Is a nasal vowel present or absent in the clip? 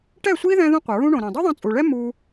present